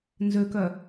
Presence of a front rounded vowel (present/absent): present